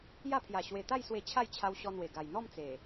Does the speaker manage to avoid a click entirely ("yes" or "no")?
yes